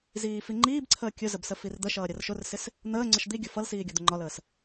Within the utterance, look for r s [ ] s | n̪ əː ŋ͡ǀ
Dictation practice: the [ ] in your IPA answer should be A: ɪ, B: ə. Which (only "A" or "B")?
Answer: A